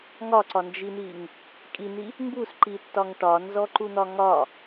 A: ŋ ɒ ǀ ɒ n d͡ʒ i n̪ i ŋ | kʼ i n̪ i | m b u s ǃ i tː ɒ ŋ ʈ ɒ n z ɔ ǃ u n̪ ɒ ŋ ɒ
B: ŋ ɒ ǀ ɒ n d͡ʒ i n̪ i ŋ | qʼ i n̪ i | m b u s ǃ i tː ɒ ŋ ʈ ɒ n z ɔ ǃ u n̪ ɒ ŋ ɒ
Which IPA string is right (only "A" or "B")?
A